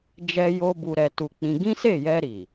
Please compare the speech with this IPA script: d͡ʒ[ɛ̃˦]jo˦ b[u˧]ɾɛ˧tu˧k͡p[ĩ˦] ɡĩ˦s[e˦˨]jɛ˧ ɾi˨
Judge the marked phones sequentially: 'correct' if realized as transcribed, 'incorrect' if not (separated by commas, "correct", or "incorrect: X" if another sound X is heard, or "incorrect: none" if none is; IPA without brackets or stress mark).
incorrect: ɛ˦, correct, incorrect: ĩ˧, correct